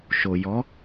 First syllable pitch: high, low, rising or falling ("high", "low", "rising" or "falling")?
low